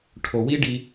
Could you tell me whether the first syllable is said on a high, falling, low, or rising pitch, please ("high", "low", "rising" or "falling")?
low